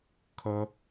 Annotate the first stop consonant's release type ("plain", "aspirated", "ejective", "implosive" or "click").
aspirated